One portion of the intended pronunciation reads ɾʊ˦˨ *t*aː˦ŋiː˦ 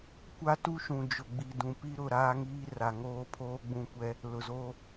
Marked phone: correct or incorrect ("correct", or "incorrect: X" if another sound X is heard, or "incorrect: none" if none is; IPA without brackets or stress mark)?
incorrect: ɾ